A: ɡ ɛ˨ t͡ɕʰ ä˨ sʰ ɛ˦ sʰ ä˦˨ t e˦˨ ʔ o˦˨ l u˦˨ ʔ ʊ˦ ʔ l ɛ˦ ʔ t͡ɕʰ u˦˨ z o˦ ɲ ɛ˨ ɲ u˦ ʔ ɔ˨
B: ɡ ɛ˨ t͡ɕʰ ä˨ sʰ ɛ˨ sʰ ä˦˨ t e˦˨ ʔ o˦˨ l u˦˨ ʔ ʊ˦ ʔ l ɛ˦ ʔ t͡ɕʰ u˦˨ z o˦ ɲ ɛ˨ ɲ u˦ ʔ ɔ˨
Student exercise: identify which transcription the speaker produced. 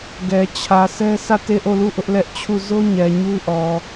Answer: A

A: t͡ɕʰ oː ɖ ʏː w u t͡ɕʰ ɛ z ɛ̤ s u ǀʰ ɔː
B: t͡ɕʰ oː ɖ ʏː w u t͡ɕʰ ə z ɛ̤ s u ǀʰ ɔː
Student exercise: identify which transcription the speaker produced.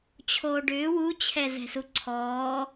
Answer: A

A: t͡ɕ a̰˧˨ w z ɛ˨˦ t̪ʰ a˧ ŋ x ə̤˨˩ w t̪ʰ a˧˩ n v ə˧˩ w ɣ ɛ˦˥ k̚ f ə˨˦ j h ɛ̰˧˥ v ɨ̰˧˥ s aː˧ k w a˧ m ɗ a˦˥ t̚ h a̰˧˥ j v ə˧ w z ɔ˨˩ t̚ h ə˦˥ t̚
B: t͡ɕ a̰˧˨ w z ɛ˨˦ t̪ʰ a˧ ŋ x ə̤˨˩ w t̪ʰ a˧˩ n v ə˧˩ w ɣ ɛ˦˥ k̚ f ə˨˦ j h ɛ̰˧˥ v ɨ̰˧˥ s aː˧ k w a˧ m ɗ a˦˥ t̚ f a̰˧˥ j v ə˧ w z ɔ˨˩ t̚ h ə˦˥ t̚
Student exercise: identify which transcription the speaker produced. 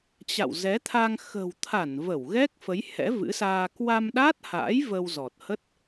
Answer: A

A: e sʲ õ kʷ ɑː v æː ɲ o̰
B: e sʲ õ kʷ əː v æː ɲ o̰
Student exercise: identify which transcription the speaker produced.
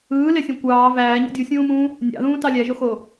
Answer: A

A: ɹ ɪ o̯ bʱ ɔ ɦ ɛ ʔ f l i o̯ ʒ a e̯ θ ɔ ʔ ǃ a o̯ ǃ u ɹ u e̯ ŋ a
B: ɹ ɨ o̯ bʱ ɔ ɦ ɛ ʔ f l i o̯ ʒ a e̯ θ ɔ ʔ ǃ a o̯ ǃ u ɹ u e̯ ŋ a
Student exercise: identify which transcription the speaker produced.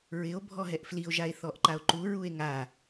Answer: A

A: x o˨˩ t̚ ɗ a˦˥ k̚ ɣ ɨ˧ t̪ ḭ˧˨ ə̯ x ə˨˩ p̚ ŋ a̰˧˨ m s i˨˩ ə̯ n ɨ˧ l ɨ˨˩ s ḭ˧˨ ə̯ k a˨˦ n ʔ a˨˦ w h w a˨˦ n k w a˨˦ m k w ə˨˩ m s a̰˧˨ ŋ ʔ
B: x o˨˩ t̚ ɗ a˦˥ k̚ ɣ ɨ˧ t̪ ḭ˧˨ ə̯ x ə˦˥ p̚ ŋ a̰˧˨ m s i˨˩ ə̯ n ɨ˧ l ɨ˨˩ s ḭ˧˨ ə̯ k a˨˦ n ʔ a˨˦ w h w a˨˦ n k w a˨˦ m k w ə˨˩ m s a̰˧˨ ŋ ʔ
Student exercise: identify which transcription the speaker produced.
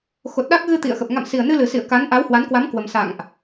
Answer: A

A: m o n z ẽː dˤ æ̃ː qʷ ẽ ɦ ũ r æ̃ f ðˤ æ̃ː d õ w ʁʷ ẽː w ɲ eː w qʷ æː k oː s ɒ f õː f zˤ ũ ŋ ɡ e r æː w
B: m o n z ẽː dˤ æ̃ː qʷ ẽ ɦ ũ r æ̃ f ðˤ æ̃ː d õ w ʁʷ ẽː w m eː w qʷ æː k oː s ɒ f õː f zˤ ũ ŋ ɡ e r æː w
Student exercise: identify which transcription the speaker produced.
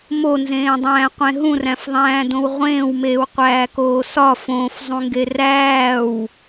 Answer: B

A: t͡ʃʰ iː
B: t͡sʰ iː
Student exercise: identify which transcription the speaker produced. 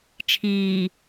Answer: A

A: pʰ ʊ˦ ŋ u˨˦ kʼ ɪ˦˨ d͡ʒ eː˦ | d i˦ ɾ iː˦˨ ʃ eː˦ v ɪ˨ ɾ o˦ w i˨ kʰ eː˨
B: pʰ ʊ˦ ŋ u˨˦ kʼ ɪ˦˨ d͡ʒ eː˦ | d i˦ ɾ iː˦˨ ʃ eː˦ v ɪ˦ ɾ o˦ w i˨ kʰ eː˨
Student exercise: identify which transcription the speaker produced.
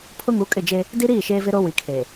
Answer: B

